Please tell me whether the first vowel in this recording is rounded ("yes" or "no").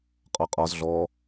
yes